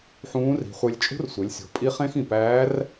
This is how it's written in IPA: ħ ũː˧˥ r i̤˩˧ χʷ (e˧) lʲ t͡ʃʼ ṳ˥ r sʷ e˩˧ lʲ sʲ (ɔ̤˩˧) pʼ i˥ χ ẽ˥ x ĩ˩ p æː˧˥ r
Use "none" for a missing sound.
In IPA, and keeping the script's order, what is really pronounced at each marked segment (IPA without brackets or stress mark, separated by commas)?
e˧, o̤˩˧